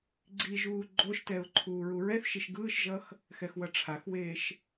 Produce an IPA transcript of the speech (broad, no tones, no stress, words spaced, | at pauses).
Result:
ɡ͡ǀiʒuː ɡ͡ǃoʃtɛʊ̯ ǃʰuːɹuɹɛθʃiʃ ɡɯːʃʒʌx | xɛxwʌʈ͡ʂʰaxweːʃ